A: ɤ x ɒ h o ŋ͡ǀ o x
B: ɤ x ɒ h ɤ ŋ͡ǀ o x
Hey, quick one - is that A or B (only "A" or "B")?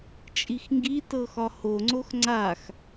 A